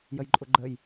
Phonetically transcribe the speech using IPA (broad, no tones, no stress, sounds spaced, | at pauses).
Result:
j ə j ǃʼ ʊ ɡ͡ǃ ə j